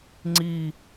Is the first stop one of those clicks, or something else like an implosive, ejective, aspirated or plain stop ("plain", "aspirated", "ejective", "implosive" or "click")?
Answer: click